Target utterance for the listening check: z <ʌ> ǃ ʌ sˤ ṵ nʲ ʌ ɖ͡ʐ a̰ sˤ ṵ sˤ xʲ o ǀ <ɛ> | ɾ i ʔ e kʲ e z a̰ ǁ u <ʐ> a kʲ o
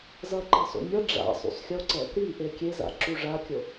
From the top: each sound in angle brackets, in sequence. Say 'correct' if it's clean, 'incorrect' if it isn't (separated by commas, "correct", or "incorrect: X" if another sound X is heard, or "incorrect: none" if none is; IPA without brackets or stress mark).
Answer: correct, correct, correct